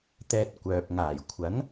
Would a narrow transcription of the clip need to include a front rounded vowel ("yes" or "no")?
yes